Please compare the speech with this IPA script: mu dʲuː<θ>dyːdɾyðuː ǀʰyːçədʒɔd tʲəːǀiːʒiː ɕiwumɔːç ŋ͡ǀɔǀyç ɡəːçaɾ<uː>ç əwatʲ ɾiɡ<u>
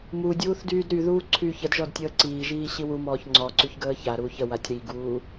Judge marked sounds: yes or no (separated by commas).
yes, yes, no